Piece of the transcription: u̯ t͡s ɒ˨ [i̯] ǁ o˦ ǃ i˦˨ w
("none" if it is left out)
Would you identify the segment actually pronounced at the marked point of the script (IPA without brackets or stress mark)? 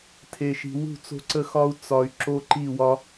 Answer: y̯